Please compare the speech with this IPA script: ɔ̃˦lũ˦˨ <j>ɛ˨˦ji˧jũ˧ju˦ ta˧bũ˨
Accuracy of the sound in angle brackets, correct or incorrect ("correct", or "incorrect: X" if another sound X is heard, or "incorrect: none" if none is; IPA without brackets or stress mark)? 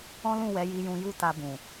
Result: incorrect: w